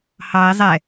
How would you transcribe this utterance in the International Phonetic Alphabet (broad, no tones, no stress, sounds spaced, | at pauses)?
h ɑ ɪ̯ zˤ ɛ